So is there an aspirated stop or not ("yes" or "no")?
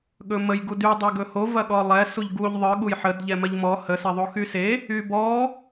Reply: no